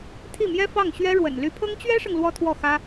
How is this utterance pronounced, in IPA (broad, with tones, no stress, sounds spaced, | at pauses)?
t̪ʰ i˥˩ m j ɛ˥ f ɑ˥˩ ŋ ɕ ɥ ɛ˥ ɻ w ə̰˨˩ n l y˧˥ pʰ ɤ˥ ŋ t͡ɕ ɥ ɛ˥ ʂ ɤ˨ ŋ l w ɔ˥ t̪ʰ w ɔ˥˩ x ä˥